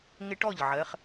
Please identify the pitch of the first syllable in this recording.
high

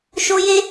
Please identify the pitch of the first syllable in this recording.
high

